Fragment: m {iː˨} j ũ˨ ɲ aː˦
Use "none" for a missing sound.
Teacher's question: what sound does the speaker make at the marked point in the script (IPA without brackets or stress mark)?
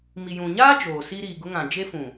i˨